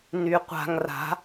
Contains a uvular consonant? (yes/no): yes